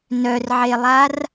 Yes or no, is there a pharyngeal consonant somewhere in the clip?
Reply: yes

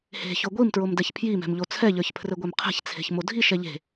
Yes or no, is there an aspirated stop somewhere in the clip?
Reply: yes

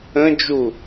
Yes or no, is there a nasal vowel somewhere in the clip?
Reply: yes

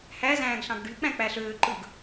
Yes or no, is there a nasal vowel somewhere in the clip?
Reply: yes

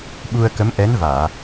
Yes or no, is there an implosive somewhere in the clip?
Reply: yes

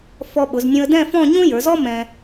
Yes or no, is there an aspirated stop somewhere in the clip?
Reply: no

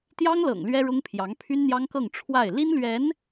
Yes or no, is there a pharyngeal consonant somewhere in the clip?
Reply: no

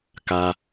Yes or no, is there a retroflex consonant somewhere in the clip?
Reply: no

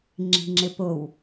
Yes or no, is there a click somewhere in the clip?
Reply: yes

